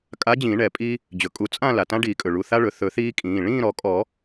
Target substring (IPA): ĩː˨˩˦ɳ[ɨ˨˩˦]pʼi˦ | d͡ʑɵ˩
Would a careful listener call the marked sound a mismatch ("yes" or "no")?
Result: yes